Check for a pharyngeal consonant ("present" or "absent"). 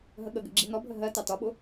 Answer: absent